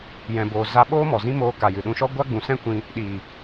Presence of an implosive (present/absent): present